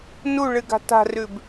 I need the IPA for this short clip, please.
n u ɭ ɨ ɡ a̤ t a̤ r ʉ b

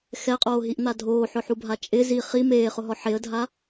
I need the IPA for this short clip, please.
x ɛ qʼ oː ɦ i ʔ n̪ a dʱ oː ħ ʊ ħ u bʱ a t͡ʃʼ ɪ z i χ i m eː χ ʊ ɦ ɔ ħ e ə̯ dʱ a

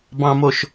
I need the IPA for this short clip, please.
b ɑ̃ m o ʃ

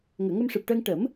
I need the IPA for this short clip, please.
ŋ əː˨˩˨ ŋ ə˧ m ʂ ɨ˨˩ p̚ ʈ əː˧ ŋ ʈ ə˨˩˦ m

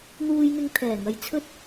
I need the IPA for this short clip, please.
n̪ uː˧ j n̪ ɪ˧ ŋ t̪ʰ ɛː˨˩ ŋ ɐ˨ j t͡sʰ ɵ˥ t̚

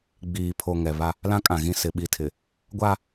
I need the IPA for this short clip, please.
ɡ͡b iː˨ pʰ o˨ ŋ ɛ˨ β a˦ | l ã˦ kʼ ã˨ ɣ ĩ˦˨ s ɪ˨ ɓ i˨ tʰ ɪ˨ | ɡʷ a˦

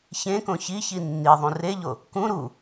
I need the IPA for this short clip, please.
ç ẽ k õ ç i ç i nː i ðˤ ũ r e ʎ o | k ũ ɾ u

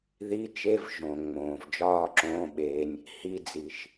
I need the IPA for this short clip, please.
ð i˧˥˧ t͡ʃ e˧˥˧ v ʒ õ˩ ŋ͡m õː˩ v d͡ʒ ɒː˥˧ ǁ õː˧˥˧ ɓ eː˧ nʲ | h i˧ d͡z i˩ ʃ

